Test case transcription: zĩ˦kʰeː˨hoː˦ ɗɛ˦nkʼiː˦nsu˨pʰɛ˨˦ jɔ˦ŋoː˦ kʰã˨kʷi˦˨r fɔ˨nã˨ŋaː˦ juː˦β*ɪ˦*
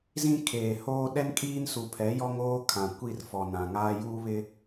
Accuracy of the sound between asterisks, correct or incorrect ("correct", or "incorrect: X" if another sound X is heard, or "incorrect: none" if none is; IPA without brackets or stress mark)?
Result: correct